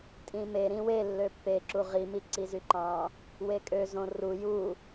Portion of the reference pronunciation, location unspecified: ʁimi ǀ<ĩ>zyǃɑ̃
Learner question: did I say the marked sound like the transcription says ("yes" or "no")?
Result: no